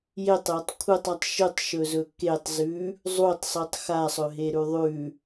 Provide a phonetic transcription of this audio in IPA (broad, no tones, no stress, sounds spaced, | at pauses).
j e tˤ j ɐ tˤ kʷʰ ɨ tˤ a tˤ ʃ ɨ tˤ ʃ ɵ z ɵ k e tˤ z ʉ | zˤ u tˤ sˤ ɨ tˤ x a sˤ ɵ ɦ e ɾ ʉ ðˤ ʉ